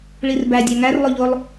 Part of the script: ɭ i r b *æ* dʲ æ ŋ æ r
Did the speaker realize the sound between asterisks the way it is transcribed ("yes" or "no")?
yes